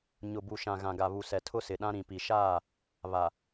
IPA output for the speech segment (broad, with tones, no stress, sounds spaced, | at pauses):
ɲ ʊ˨ b u˨ ʃ ã˨ ɣ ã˨ ɡ a˨ β u˨ s ɛ˨ tʰ ʊ˦ s ɪ˨ ɗ ã˦ ɾ ĩ˨ p i˨ ʃ aː˦˨ | β a˨